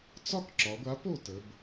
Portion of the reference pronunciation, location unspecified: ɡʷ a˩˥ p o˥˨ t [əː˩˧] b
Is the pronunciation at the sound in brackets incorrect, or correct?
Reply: incorrect: ə˩˧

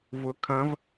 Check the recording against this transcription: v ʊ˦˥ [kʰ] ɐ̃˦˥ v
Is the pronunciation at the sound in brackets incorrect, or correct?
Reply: correct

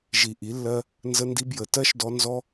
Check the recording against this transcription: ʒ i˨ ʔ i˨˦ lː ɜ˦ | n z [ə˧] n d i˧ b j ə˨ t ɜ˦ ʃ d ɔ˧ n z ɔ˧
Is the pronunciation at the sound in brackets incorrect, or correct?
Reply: correct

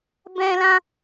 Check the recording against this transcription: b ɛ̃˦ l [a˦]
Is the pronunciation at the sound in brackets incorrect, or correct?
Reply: incorrect: ã˦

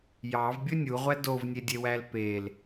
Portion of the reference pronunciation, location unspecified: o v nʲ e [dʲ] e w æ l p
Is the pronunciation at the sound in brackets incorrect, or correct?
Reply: correct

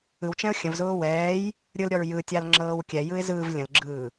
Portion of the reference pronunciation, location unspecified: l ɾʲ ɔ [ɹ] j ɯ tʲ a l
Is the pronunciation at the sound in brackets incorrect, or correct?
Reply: correct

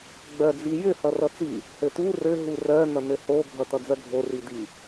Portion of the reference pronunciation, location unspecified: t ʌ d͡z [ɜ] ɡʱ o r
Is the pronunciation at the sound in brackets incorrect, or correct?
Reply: correct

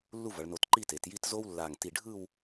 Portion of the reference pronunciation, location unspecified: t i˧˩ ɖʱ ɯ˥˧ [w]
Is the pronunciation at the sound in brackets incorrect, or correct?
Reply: correct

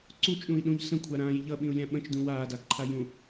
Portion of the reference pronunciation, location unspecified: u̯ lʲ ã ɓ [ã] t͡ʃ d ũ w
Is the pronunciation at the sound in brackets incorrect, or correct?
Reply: incorrect: ə̃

